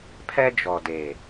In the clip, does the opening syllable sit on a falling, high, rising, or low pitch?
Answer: high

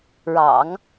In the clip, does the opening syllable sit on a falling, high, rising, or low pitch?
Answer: low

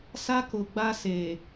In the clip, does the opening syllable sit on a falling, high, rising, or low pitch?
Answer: high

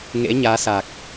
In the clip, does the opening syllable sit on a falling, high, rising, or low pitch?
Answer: rising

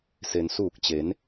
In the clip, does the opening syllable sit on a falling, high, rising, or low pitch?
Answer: low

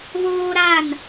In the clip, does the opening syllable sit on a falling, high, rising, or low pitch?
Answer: high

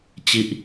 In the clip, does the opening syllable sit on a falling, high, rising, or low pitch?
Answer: low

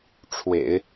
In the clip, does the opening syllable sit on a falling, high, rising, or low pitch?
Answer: low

